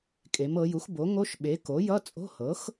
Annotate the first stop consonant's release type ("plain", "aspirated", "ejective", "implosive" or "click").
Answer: ejective